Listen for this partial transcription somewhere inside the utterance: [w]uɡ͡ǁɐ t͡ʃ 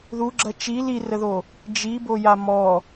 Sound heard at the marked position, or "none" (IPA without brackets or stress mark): ð